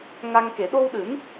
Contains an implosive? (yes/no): yes